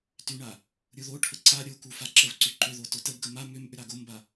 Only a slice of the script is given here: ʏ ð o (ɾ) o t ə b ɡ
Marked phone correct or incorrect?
incorrect